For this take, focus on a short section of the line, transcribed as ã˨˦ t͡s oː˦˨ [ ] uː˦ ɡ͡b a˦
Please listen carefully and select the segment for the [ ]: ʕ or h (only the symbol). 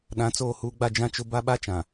h